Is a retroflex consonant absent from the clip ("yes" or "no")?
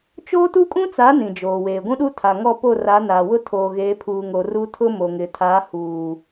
yes